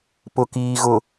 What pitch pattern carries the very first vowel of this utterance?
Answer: low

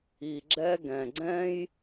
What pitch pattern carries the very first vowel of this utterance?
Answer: low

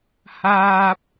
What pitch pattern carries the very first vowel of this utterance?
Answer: low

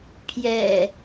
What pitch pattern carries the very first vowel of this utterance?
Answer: low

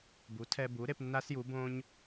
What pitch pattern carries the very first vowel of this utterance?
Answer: rising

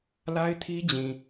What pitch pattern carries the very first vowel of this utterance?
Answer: high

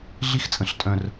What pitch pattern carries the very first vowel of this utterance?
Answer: high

